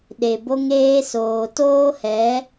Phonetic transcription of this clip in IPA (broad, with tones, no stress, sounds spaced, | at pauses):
ɗ e˨ b o˦ ŋ eː˦ s oː˨ t oː˦ h ɛ˨˦